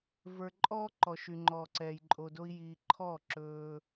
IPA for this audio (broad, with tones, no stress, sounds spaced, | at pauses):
v ə˞˨ ǃʼ ɔː˦ ǃ ɔ˨ ʃ y˨ ŋ͡ǃ ɔː˨ ǀ ɛː˨ j ǃʼ o˨ d o˧ i̯ j iː˨ ǃʰ ɔː˦˨ ǁ ɵː˧